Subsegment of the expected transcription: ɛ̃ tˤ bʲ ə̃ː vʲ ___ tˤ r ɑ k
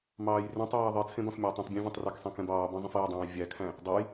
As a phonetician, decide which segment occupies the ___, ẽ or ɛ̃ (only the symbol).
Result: ɛ̃